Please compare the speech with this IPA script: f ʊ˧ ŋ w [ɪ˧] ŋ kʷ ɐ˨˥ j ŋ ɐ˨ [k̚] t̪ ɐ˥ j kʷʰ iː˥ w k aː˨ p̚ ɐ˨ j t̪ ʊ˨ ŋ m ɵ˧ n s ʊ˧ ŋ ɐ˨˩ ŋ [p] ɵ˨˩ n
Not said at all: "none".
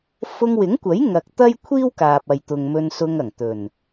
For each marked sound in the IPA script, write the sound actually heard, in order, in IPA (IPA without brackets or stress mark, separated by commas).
ɪ˨˥, k̚, t̪